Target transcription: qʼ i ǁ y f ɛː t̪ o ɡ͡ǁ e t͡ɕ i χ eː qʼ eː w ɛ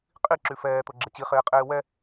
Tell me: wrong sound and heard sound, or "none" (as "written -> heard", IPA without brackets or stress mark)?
e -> ɛ